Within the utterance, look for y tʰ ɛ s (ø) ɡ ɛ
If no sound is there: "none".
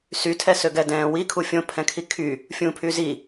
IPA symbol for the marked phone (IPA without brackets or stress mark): ø